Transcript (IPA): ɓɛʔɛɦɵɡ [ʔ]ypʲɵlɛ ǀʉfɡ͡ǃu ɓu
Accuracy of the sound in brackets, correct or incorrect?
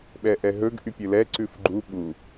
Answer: correct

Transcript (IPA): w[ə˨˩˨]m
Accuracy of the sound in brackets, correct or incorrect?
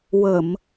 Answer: correct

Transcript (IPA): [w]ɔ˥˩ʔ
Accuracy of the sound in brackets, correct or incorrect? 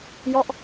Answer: incorrect: j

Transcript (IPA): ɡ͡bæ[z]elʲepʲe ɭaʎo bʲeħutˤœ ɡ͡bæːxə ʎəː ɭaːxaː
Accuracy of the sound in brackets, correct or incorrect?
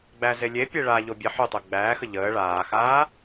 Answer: correct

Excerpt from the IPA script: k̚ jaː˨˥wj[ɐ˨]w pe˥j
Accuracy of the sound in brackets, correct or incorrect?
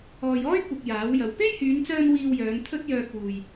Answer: correct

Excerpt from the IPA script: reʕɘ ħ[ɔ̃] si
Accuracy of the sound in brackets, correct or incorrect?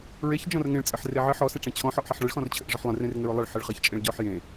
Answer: incorrect: ɔ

